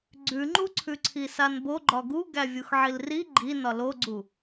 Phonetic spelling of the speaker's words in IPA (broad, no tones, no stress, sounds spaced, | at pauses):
ɡ͡ǀ ʉ ŋ͡ǃ u ǀʰ ʉ ǀʰ i s a n b o ɡ͡ǃ ɒ ɡ u ɡ æ vʲ u x ʕ i l r i ɡ͡ǃ i n ɒ l o ɡ͡ǀ u